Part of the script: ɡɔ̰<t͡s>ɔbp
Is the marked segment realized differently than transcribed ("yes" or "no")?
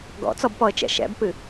no